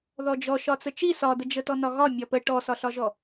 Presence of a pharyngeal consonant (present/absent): absent